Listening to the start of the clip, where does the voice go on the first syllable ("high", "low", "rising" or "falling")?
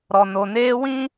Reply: low